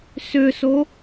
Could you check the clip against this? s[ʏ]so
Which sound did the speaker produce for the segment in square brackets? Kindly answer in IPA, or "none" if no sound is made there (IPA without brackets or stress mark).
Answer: ʏ